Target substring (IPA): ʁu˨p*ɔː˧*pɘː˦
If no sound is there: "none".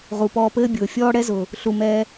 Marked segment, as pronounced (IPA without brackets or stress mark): ɔː˧